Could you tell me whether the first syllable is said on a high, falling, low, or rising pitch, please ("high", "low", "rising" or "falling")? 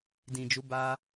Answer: low